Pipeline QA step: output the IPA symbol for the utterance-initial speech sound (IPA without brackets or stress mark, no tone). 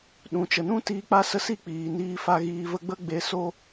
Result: ɗ